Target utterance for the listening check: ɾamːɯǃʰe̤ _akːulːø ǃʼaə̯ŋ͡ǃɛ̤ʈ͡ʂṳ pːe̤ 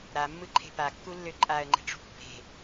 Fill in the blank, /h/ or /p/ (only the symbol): p